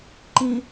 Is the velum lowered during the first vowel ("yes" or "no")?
yes